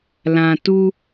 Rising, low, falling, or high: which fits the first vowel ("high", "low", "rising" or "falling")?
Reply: low